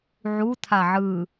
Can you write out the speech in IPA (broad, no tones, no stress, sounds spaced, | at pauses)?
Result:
ʕ u t̪ʰ a ʕ ɯ